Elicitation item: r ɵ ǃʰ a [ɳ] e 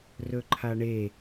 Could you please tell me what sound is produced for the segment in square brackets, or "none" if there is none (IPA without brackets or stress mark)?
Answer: ɳ